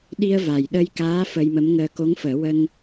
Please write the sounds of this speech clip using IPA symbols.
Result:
ɗ i˧ ə̯ v a˨˩ j ɗ ə˧ j k aː˧˥ f ə˧ j m ə˧˥ m ŋ əː˧ k o˧˥ ŋ f əː˨˩˦ w ə˧ ŋ

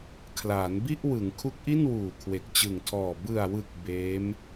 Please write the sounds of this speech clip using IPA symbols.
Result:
kʰ l aː˩˦ n b i˥˩ ʔ w ɯ˩˦ ŋ kʰ u˦˥ k̚ ʔ i˥˩ n w uː˨˩ kʰ w e˨˩ k̚ t͡ɕ ɯ˨˩ ŋ tʰ ɔː˨˩ b ɯ˨˩ a̯ w ɯ˨˩ k̚ b eː˦˥ m

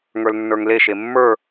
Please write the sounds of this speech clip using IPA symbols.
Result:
ŋ ə˞ l nː ə˞ ŋ l e ʃ e mː ə˞

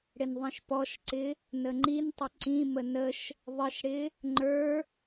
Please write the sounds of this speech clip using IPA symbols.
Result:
ɽ ɪ n ðˤ ĩ ʃ p ɔ ʃ ǀ ɪ | n ə ŋ͡ǃ i n tˤ ə ǀ ĩ m ə n ə ʃ | ðˤ ə ʃ ɽ ɪ | ŋ͡ǃ ə˞

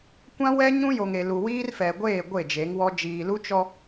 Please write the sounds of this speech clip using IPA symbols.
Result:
kʷ ã˦ w ɛ˦ ɲ ũ˦ j o˨ ŋ e˨ l u˨ w iː˦ r f ɛ˨ ɡʷ eː˦˨ ɡʷ e˦˨ d͡ʒ e˨˦ ŋ w ɔ˦ d͡ʒ iː˨ l u˦ t͡ʃ ɔ˦

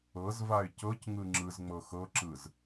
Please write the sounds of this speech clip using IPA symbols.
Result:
ɤ z v a ɪ̯ c ɤ c ŋ ɯ ŋ͡ǁ ɯ z ŋ͡m ɤ x ɤ ǁ ɯ z

